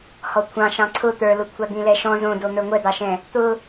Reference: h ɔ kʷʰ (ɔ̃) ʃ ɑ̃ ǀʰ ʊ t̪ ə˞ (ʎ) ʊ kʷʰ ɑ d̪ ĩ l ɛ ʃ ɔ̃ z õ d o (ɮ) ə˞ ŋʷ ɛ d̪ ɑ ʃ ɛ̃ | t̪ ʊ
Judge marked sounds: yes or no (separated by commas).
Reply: no, no, no